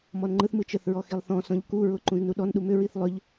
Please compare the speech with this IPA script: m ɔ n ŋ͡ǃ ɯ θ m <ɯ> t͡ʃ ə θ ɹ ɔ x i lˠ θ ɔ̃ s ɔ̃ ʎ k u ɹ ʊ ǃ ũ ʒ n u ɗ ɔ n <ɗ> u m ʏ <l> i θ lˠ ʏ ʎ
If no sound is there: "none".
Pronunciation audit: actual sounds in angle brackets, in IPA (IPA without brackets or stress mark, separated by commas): ɯ, ɗ, ɹ